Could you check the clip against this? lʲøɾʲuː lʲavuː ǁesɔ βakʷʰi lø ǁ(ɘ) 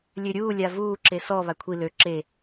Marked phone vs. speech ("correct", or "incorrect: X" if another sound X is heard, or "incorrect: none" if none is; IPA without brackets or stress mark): incorrect: e